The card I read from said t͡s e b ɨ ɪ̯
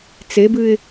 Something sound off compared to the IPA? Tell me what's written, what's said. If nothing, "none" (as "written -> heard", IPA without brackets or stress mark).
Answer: none